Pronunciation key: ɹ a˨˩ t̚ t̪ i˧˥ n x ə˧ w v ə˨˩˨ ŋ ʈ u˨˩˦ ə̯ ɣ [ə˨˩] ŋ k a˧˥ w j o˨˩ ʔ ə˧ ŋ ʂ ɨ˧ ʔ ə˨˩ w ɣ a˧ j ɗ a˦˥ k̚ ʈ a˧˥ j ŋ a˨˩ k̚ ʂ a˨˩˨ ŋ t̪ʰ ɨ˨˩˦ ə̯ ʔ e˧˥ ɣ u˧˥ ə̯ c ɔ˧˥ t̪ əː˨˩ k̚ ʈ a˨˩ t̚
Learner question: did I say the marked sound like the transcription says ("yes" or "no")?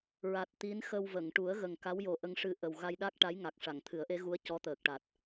yes